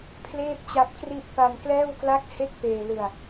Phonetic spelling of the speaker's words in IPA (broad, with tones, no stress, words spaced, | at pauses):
pʰleː˥˩p̚t͡ɕa˦˥p̚kri˥˩ʔ pa˧nklɛː˥˩wkla˥˩k̚ he˥˩k̚peː˧lɯ˧a̯